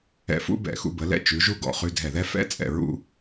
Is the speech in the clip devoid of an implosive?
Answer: yes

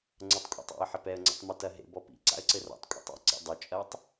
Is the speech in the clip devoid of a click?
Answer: no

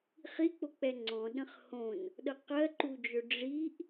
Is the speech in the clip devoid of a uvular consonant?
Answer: no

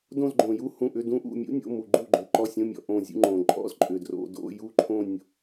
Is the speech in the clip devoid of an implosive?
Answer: yes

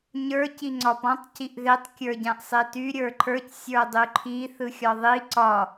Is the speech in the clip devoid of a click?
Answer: no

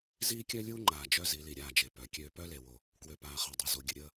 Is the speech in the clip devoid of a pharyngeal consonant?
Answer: yes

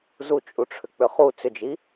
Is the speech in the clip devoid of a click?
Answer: yes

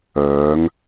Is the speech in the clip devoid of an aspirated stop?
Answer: yes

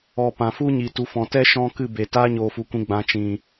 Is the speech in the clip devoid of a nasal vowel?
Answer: no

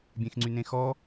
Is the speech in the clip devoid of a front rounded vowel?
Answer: no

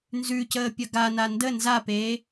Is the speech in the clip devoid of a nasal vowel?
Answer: yes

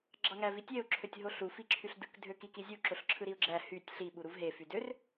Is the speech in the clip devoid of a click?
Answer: no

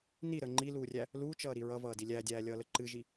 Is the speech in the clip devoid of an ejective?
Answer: yes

